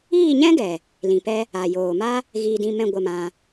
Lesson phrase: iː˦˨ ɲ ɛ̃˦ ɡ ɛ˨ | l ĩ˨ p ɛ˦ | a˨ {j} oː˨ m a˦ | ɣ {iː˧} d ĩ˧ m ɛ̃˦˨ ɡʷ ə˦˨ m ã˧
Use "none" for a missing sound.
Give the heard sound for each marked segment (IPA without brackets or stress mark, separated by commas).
j, iː˧